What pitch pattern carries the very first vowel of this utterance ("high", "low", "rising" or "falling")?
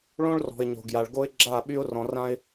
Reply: high